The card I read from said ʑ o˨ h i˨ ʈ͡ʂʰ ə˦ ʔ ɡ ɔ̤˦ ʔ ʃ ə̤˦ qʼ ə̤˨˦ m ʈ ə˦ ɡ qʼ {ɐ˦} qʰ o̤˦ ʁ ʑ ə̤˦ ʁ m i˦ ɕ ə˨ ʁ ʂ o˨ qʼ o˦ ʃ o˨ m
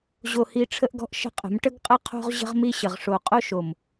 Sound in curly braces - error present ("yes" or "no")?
no